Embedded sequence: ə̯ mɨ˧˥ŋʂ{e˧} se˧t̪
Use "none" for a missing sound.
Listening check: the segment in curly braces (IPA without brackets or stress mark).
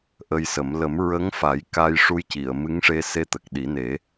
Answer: e˧